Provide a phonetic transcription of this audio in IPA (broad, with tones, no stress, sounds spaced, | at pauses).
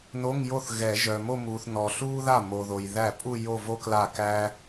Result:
n o˧˥˧ ŋ j o˥˩ θ ɣ ɛ˨˩˦ ʒ œ˨ m o˥˧ m uː˨ θ n ɔ˨ ɬ uː˥ ð a˥˩ m o˨ ð o˨ j ð æ˥˩ pʼ u˥˧ j o˥˧ v o˥ k l a˥˩ k æ˥